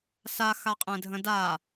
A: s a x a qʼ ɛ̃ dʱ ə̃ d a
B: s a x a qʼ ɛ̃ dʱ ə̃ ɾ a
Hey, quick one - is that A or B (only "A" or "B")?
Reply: A